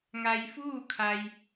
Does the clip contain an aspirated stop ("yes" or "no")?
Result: yes